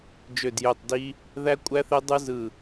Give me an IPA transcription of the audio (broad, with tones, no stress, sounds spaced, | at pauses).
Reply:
d͡ʒ ø˧˩ d j ø˧˩ tˤ d i˦˥ | ð æ˦˥ kʷʼ æ˦˥ θ e˦˥ dˤ ɯ˦˥ z ɯ˧˩